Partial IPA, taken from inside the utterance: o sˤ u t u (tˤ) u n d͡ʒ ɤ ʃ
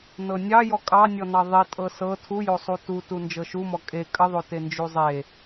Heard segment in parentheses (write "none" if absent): t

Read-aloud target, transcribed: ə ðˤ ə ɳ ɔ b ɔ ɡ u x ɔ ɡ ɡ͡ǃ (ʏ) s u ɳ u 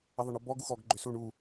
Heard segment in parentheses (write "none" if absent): ʏ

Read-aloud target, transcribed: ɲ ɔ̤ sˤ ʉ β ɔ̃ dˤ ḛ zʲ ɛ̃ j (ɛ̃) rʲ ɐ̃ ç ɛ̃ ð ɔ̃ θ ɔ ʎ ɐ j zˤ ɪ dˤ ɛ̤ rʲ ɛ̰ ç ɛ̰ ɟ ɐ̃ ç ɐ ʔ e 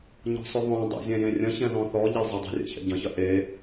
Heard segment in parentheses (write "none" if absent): ẽ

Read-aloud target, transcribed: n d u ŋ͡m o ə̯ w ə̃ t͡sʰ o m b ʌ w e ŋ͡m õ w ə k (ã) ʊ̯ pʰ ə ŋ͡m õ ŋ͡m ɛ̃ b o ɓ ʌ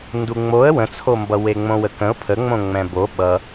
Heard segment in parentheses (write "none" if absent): ə̃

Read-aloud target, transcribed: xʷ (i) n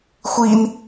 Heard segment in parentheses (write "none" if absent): i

